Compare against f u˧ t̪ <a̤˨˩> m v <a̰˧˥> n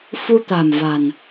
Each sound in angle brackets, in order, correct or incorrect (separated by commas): correct, incorrect